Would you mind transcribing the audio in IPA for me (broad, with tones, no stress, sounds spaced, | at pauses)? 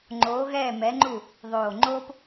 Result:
ŋ͡ǃ oː˩˧ ɣ ɛː˧˩ m ɛ˩˧ ŋ͡ǃ u˧˩ | ðˤ oː˧˩ ŋ͡ǃ oː˥ p